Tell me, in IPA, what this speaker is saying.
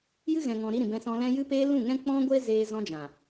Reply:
j ɨ˦ ɣ ɛ̃˨ ŋ ɔ̃˨ ɾ i˧ ɾ ĩ˨ b ɛ̃˧ s ɔ̃˧ l ɛ̃˦ j ɨ˧ p eː˧ l ũ˦˨ ŋ ɛ̃˦ k͡p ɔ̃˦ ɡʷ eː˦ z eː˧ z ɔ̃˧ d͡ʒ ã˨

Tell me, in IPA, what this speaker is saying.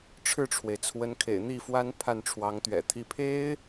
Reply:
ʈ͡ʂʰ ɻ̩˥˩ ʈ͡ʂʰ w e˩ ɪ̯ t͡sʰ w ə˧˥ n kʰ ḛ˨˩ ɪ̯ n̪ i˥˩ f w a˥ n pʰ a˥˩ n ʈ͡ʂʰ w ɑ˧˥ ŋ t̪ ɥ ɛ̰˨˩ t̪ʰ i˥ pʰ e˥ ɪ̯

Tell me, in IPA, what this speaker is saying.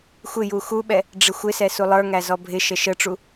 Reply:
xʷ ɪ j u x u ɓ ɛ | ɖ͡ʐ ɪ xʷ ɪ s ɛ s u lˠ ə˞ ŋ æ z ɔ bʱ ɪ ʃ ə ʃ ə ʈ͡ʂ u

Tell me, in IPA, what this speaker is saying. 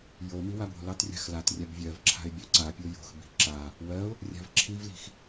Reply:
j o m i w a b o̤ l ɑ t rʲ a̤ x l a t rʲ a b vʲ ɜ v ǁʰ a̤ ɪ̯ bʲ ɒ ǀ a pʲ o j o̤ x b i̤ ǁ a | w ɜ ʊ̯ | rʲ a̤ v ǁʰ i v l i̤ x

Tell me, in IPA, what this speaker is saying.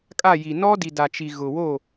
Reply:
kʼ a˦˨ j i˨ n ɔ˦ d i˨ d a˨ t͡ʃ i˨ ɣ ʊ˨ w o˦˨

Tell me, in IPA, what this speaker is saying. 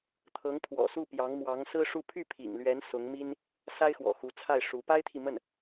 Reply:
t̪ʰ ɤ˧˥ ŋ pʰ w ɔ̰˨˩ s u˥˩ p j ɑ˧˥ ŋ m w ɑ˧˥ ŋ s ɹ̩˥ ʂ u˥˧ pʰ y˥˩ pʰ ḭ˨˩ ŋ l ɥ ɛ˧˥ n s ʊ˧˥ ŋ m i˥ n | s a˥ ɪ̯ x w ɔ̰˨˩ x u˧˥ t͡sʰ a˥˩ ɪ̯ ʂ u˧˥ p a˥ ɪ̯ t̪ʰ i˨ m ə˥˩ n

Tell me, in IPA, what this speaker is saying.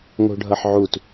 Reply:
ŋ o̤ ɖʱ ʌ ħ ʕ u t

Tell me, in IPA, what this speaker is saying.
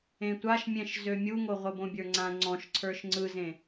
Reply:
ẽ tʷ a ʃ mʲ ɛ̃ ʃ z ø mʲ u ŋ o ʁʷ ɘ b õ bʲ ə˞ ŋ͡ǀ ã ŋ͡ǀ ɔ̃ ʃ ǀʰ ə˞ ʃ ŋ͡ǀ ɯ z ẽ

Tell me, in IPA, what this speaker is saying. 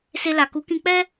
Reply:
s e˧ l a˨ k u˨˦ k ĩ˧ k͡p ɛ˦

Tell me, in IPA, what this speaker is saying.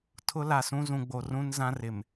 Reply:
tʰ ʊ˦ l a˨ s ũ˦ z ũ˨ ɡ͡b o˨ r ũ˦ n z ã˦ r ɪ˨ m

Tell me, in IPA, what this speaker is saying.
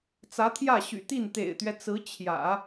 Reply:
t͡s ä˧˥ t̪ʰ j ä˥˩ ɕ y̰˨˩ t̪ i˥˩ n t̪ ḛ˨˩ ɪ̯ t̪ ɥ ɛ˦ t͡s ɹ̩˧˥ t͡ɕʰ j ä̰˨˩˦

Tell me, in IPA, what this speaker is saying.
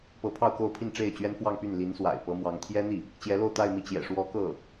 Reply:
p ɤ˧˥ pʰ ɑ˥˧ ʊ̯ k o˥˧ ʊ̯ pʰ i˥˧ n ʈ͡ʂ e˥˩ ɪ̯ t͡ɕ ɥ ɛ˥ n f w ɑ˥˧ ŋ p y˥˩ n l i˧˥ n s w a̰˨˩ ɪ̯ p ɤ˧˥ m w ɑ˧˥ ŋ t̪ʰ j ɛ˥ n̪ i˥˩ | t͡ɕ j ɛ˧˥ l o˥˧ ʊ̯ t̪ a˥˧ ɪ̯ m i˥˩ t͡ɕ j ɛ̰˨˩ ʂ w ɔ˧˥ k ɤ˥˩

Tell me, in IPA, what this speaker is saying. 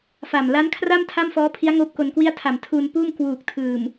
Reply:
f a˨˩ m l a˦˥ n kʰ r a˥˩ m tʰ a˥˩ m f ɔː˦˥ pʰ i˦˥ a̯ ŋ oː˥˩ p̚ k o˧ n k w i˥˩ a̯ tʰ a˨˩ m tʰ uː˧ n p uː˥˩ m k w uː˨˩ k̚ tʰ ɯː˨˩ m

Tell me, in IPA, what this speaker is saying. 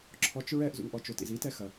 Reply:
ǁʰ ɔ t͡ʃ ɹ ɛ ʔ z ṵ ŋ ʔ ɔ t͡ʃ o t ḭ z i t ɛ x ɐ

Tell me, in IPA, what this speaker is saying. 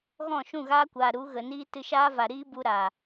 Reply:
ɣ ɔ̃˦˨ ʃ ũ˦˨ ɣ aː˦ kʷ aː˨ ɾ u˨˦ ɣ ə˨ n iː˦ t ɨ˧ ʃ aː˦ v a˨ ɾ iː˦ b u˧ ɾ aː˨

